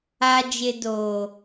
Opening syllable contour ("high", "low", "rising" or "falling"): low